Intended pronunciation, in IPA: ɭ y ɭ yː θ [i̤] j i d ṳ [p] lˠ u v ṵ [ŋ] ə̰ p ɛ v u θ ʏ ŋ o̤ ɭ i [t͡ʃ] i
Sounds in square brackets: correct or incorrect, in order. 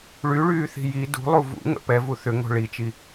correct, incorrect: none, correct, correct

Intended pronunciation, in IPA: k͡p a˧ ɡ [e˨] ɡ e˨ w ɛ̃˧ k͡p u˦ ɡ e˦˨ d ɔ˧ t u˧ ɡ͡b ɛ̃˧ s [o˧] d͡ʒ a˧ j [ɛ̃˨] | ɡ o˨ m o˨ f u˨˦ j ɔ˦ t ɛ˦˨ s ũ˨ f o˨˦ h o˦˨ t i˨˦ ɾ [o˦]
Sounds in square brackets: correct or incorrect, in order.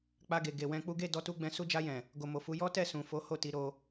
correct, incorrect: u˧, correct, correct

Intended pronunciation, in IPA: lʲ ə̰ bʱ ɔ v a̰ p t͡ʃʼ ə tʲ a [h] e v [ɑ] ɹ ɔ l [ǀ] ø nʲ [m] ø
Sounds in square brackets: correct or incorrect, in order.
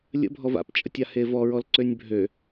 correct, incorrect: ɔ, correct, incorrect: bʱ

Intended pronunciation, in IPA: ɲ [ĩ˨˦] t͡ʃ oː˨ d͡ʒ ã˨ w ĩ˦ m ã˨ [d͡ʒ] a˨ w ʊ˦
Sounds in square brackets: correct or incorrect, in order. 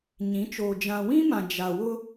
correct, correct

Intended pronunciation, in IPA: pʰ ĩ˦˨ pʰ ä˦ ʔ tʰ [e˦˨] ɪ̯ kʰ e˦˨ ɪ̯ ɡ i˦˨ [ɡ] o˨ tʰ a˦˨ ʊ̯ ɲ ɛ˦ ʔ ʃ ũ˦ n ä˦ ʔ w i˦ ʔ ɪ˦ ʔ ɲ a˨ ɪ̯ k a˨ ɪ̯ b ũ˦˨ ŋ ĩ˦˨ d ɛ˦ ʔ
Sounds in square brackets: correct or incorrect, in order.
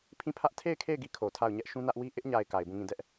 correct, incorrect: kʰ

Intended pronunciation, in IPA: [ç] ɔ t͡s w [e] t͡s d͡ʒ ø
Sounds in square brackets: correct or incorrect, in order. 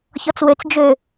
correct, incorrect: ø

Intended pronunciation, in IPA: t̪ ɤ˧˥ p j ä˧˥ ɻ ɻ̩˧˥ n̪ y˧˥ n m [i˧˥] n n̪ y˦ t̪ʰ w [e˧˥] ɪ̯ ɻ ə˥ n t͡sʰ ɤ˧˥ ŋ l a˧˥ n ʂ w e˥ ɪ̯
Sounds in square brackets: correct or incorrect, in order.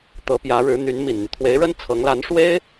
incorrect: i˨˩, correct

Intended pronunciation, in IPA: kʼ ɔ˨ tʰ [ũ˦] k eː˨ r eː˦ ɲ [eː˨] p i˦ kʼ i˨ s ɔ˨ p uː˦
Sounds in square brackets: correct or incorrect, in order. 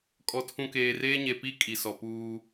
incorrect: ũ˨, incorrect: e˨

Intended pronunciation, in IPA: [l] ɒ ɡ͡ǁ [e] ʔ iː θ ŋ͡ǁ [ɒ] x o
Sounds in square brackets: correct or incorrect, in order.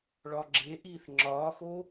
incorrect: ɭ, correct, incorrect: ɒː

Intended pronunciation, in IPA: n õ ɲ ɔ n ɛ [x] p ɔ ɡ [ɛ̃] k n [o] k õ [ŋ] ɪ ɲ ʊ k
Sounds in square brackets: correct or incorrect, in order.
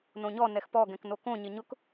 correct, correct, correct, incorrect: ɲ

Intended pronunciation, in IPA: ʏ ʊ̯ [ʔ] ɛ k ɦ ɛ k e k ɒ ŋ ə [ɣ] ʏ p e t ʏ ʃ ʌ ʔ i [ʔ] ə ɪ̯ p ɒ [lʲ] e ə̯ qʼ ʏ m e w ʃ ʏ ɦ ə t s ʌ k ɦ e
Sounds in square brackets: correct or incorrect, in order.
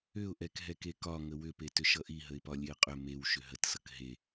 correct, incorrect: w, incorrect: ɦ, correct

